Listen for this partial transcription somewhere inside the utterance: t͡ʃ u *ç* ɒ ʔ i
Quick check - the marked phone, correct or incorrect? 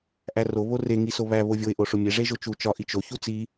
incorrect